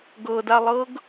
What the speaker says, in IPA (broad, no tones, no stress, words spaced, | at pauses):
ɡɤdalˠɤɡ